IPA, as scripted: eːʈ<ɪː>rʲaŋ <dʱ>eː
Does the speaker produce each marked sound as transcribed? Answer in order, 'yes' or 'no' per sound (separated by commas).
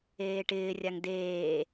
yes, no